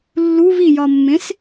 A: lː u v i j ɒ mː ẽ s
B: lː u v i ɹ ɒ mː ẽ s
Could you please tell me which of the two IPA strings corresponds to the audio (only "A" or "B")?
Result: A